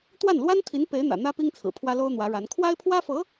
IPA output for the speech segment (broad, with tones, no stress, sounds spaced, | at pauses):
t̪ w a˥˩ n l w a˥ n t̪ʰ i˧˥ n p e˧˥ ɪ̯ n̪ ä̰˨˩ n̪ ä˥ p i˥ ŋ t͡sʰ ɹ̩˨˩ pʰ w ä˥ l o˥ ʊ̯ n̪ w ä˧˥ ɻ a˧˥ n kʰ w a˥ ɪ̯ pʰ w ä˥ f ɤ˧˥